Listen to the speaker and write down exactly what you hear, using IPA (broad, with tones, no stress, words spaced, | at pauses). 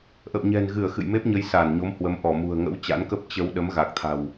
ʔə̰˧˨wɲɛ̤˨˩nɣɨ˧˩ə̯ xɨ̰˧˨jme˦˥p̚ɲə˨˦j sa˧˩nɲo˨˦mhwə˨˦m ʔɔ˧˩mṳ˨˩ə̯ŋə̰˧˥w t͡ɕa̰˧˥nkə˦˥p̚ t͡ɕə˧w ɗə˨˦mɣa˨˩k̚t̪ʰa̤˨˩w